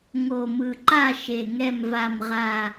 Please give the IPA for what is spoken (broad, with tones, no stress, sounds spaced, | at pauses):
ŋ o˨˩ m ɯ˨˩ ǃ a˥˨ ʃ e˨˩ ŋ ɛ˥˨ m v a˥˨ m ʁ a˥˨